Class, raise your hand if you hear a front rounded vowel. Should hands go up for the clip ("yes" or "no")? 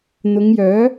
yes